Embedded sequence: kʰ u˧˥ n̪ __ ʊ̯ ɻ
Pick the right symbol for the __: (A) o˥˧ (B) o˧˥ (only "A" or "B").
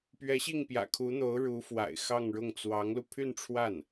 B